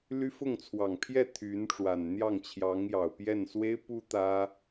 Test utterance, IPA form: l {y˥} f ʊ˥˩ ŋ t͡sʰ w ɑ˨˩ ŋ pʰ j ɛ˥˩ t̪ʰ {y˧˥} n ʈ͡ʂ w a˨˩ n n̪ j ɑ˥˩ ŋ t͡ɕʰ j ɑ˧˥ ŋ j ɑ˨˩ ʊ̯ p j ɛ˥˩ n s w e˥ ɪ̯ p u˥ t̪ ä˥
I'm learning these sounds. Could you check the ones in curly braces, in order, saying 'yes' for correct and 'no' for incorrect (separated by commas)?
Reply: yes, yes